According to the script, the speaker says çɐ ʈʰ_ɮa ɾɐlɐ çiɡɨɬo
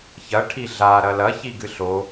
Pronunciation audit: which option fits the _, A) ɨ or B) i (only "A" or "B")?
B